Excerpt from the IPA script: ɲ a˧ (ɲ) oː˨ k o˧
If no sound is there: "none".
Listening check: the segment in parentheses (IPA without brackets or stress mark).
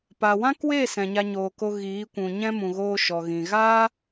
ɲ